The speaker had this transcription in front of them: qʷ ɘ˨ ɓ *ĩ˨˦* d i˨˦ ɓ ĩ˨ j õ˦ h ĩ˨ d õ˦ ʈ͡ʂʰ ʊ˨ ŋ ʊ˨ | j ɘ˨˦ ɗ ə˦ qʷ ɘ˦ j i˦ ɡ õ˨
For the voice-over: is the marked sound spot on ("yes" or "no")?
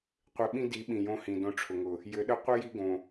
no